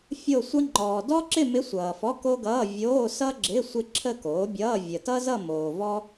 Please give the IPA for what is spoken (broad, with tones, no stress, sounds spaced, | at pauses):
fʲ o˥˧ sʷ ʌ˥ ŋ͡ǃ ɔː˨ d ɔ˥ ǁ ɪ˥˧ m ɪ˧˥ sʷ ʌː˨ f ɔ˧˥˧ k o˥ ɡ ʌː˧˥˧ vʲ oː˧˥˧ s ʌ˥ ɡ͡ǁ ɪ˧˥˧ sʷ ɪ˥˧ ǁʰ ə˥˧ k oː˩˥ bʲ ʌː˧˥˧ vʲ ə˨ t ʌ˥ z ʌ˥˧ m oː˨ v ɔ˥